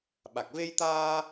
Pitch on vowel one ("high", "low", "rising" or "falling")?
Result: low